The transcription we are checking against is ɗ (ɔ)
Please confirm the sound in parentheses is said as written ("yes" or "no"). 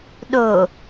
no